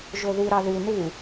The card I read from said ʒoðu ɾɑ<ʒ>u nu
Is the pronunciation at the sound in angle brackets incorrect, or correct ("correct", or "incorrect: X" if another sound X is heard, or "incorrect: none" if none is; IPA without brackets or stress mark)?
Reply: incorrect: ð